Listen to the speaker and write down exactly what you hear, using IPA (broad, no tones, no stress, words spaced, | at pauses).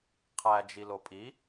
qʰæ d͡ʒilopʼi